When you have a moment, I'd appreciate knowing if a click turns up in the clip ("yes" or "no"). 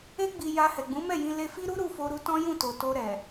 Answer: no